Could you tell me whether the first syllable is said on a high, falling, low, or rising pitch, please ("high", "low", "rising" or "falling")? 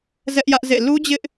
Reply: high